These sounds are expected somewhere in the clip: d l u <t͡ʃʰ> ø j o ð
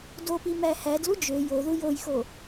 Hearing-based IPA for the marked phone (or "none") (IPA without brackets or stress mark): d͡ʒ